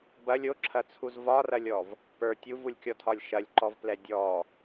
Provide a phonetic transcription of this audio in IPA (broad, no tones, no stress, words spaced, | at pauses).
bɐlʲ oǁʰɐt͡sʰuz vɒrɐlʲɔv | pə˞ tʲuvulʲkʲɔtʰɒlʲ ʃɐlʲǃɔvplɛ dʲɔ